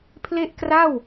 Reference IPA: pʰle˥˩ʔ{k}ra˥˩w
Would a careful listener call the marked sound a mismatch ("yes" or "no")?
no